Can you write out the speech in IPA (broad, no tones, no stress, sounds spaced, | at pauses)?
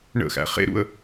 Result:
ɳ ə̰ x æ̰ χ ḛ ɾ ṵ ə̯